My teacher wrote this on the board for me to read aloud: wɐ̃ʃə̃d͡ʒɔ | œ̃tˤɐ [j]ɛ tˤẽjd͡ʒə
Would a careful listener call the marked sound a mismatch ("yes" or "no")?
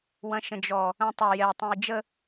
no